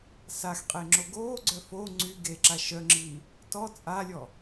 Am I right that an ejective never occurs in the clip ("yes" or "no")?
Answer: no